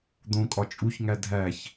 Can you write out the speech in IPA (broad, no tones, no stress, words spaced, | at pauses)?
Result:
d̪õkʼɒ t͡ʃʼuçŋæ dʱæç